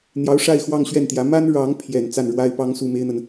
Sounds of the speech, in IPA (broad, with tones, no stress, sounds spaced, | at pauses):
n̪ j ɑ˧˥ ʊ̯ ʂ a˥˧ ɪ̯ x w ɑ˥˧ ŋ ɕ ɥ ɛ˥˩ n t̪ j ä˧˥ m a˥ n ɻ ɑ˧˥ ŋ pʰ j ɛ˨˩ n t͡s a˥˩ n ɻ w a˥ ɪ̯ p ɑ˥ ŋ s u˥˩ m e˥ ɪ̯ n̪ ə˨ n